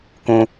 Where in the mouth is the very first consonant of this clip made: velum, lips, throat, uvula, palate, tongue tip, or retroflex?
velum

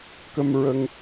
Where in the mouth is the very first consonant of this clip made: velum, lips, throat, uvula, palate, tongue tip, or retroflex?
velum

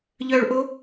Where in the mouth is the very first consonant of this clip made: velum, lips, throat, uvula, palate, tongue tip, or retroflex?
palate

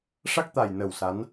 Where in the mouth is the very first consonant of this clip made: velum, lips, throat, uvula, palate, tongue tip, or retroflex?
retroflex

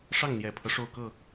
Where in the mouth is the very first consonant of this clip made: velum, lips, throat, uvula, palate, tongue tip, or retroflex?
retroflex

